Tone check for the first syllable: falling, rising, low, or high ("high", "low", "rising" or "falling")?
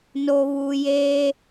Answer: low